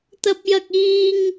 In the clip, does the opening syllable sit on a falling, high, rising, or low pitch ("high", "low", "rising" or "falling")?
high